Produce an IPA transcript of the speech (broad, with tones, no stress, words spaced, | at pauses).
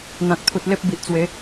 n̪ã˨k̚t̪ʰu˨t̚ le˦p̚bi˨ʔt͡swe˨˦